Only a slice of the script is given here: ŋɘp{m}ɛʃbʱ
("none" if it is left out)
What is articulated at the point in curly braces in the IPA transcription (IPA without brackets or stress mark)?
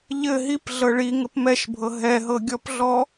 m